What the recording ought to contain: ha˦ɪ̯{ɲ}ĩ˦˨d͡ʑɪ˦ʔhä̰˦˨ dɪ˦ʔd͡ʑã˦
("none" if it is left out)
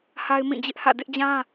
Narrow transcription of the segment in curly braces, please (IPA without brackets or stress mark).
m